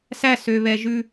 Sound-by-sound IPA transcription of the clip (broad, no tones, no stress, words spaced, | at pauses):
sæsøβɛʒʉ